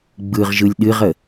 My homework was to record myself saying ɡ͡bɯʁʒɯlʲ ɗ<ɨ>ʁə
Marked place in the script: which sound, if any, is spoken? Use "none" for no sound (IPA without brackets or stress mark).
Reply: ɨ